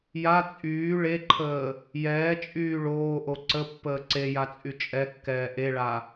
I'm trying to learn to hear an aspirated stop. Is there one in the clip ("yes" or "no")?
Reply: yes